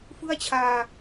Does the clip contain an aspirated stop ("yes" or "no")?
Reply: yes